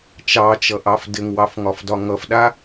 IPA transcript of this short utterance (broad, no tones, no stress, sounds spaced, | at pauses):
t͡ʃ ɑ t͡ʃ ʌ ʔ ɑ f d ɘ ŋ w ɑ f ŋ ɒ f d ɒ ŋ ʌ f ɗ a